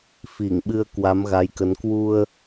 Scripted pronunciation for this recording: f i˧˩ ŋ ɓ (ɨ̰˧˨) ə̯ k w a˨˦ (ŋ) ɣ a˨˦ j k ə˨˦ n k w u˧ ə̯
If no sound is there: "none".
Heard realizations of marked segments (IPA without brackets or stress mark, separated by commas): ɨ˧, m